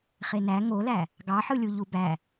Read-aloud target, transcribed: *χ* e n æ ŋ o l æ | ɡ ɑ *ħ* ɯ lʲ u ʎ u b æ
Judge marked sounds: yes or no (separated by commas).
yes, yes